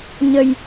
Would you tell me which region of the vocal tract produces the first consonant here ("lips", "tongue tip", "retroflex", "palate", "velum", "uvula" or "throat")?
palate